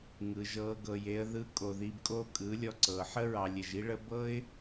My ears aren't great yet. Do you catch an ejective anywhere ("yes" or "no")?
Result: yes